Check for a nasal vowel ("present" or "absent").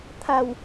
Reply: absent